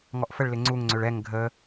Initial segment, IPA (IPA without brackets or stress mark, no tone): ŋ